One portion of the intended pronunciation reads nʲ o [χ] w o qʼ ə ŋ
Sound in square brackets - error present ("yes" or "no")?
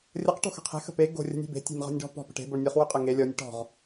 no